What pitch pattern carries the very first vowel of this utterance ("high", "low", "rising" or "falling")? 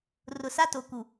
low